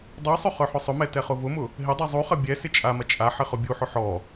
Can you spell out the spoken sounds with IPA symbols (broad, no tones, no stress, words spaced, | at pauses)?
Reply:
dˤusˤʊ χœħʊsˤʊmɛ tɛχʊvʊmʊ | ɦɪdˤɛ zˤuχɐ bʲɛ sɪt͡ʃʼamɐ t͡ʃʼaħɪ χʊbʲuħʊ ħɔ